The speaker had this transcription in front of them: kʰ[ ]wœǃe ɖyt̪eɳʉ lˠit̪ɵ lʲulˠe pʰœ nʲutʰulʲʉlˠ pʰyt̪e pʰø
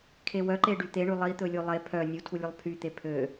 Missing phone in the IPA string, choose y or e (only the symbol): e